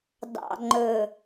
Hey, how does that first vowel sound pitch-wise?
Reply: low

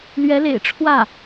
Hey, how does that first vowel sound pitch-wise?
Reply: rising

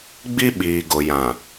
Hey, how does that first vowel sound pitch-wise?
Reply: high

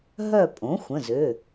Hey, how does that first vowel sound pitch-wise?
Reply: falling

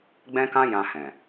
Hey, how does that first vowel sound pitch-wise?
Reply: high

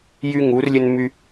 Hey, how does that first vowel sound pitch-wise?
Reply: high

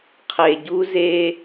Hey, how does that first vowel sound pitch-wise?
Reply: low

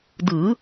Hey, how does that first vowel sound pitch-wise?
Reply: rising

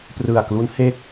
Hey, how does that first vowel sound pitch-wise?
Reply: low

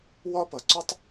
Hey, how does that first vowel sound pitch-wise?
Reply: high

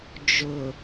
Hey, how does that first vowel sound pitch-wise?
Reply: low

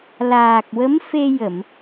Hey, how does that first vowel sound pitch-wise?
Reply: low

